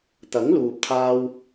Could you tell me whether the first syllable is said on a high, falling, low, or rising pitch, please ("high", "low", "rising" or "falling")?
rising